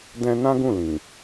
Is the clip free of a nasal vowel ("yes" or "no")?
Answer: no